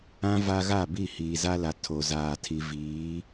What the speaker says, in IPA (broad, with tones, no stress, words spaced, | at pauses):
ã˦ va˦ ɣa˦˨bi˦˨ hiː˨za˦la˨ tʰo˨zaː˨ tʰi˨viː˨˦